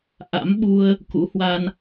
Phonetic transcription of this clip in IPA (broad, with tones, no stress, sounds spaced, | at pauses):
ʔ a̰˧˥ m ɓ u˧ ə̯ | k ṵ˧˥ h w a˧ n